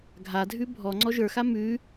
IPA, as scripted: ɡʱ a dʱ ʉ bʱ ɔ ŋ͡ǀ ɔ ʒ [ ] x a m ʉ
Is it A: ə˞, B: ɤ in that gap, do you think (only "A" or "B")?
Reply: A